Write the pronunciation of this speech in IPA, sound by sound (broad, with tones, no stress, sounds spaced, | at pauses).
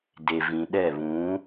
d e˨ v ĩ˨ ɗ ɛ˦˨ β ũ˨˦